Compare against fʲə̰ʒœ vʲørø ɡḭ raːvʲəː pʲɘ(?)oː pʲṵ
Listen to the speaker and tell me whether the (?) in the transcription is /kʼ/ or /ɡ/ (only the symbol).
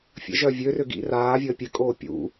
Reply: kʼ